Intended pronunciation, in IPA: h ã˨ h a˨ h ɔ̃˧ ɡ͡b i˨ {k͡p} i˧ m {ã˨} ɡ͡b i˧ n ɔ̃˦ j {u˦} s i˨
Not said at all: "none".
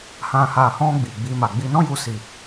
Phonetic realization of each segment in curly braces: ɡ͡b, a˨, u˧

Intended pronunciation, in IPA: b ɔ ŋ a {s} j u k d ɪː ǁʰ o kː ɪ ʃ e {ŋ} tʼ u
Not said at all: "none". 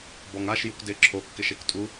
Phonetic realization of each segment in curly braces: ʃ, k

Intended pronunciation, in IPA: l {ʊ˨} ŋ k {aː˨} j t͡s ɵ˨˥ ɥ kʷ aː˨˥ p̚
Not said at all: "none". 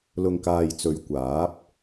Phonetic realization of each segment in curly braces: ʊ˨, aː˨

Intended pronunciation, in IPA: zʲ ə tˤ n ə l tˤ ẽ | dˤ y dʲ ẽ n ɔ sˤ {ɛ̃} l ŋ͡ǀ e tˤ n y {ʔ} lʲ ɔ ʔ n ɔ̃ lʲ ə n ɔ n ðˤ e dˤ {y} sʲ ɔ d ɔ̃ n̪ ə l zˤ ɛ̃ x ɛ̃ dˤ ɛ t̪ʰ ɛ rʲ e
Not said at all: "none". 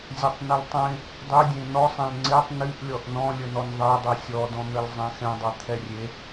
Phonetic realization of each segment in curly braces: ɛ̃, ʔ, y

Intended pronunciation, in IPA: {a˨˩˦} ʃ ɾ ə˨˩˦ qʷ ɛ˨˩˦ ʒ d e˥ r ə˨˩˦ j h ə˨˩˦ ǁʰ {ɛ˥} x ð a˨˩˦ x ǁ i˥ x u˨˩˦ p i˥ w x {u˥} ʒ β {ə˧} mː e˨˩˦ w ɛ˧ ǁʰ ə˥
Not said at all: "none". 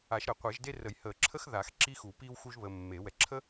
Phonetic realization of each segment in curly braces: a˨˩˦, ə˥, u˥, ə˧

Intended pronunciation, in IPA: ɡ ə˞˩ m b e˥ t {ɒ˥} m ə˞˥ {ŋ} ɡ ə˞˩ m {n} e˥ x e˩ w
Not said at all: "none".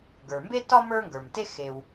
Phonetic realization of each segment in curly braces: ɒ˥, ŋ, t

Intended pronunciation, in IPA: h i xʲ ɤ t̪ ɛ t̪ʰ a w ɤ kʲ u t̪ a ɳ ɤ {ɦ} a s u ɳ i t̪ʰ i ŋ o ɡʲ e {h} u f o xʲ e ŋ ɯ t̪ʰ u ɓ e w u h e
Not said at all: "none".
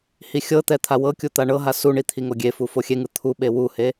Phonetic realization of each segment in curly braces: ɦ, f

